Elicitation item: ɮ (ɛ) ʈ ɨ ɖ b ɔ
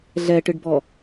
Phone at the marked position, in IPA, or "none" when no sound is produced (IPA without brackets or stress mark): ɛ